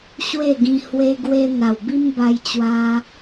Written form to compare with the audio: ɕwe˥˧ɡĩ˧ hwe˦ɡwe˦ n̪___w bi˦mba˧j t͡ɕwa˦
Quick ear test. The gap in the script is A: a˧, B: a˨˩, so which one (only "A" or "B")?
B